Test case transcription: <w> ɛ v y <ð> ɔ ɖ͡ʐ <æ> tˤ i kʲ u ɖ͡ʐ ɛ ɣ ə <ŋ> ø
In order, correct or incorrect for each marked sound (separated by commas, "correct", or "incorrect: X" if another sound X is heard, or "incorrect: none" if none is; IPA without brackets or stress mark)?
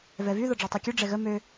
incorrect: v, correct, incorrect: œ, incorrect: m